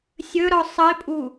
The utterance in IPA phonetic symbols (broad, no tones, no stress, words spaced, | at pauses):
sʲɵɾɔ sˤəɪ̯pʼu